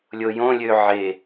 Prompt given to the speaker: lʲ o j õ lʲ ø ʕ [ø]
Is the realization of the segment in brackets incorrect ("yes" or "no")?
yes